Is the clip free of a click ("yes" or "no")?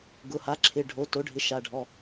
no